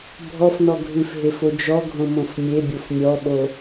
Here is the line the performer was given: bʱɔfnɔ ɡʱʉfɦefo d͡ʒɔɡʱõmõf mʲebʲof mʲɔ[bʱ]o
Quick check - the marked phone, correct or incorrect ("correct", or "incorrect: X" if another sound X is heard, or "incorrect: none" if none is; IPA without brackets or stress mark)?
incorrect: ɓ